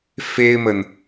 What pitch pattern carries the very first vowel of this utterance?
high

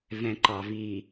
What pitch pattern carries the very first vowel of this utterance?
low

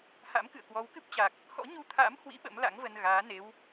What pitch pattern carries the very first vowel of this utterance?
rising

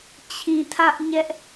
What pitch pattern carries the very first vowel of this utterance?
low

